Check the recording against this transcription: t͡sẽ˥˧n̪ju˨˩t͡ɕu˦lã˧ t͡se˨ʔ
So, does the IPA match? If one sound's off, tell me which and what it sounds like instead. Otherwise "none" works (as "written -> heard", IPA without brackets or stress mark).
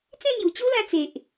none